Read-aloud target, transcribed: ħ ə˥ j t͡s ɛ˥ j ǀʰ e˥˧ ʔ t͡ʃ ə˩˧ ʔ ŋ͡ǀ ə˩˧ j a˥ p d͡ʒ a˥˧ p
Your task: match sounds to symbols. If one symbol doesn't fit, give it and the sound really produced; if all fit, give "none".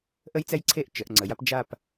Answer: ħ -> ʔ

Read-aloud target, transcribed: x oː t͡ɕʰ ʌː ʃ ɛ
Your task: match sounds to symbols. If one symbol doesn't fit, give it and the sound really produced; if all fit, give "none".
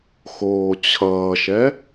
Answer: none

